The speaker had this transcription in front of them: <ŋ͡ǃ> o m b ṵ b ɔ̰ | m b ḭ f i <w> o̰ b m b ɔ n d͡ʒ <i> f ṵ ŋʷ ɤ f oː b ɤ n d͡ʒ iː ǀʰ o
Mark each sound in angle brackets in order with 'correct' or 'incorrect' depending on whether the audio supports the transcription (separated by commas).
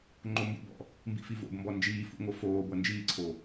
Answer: correct, incorrect, incorrect